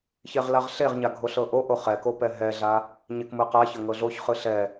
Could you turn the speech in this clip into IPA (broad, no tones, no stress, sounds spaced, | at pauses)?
ç e ʁ l a ʁ ɬ e ʁ ɲ a ɡʱ o ɬ ɤ ʔ o ʔ o χ ɛ k o p ɛ ɦ ɛ ɮ a | ɲ e k m ɯ q a ç ɤ ŋ ɤ ɮ o ç χ ɯ ɬ ɛ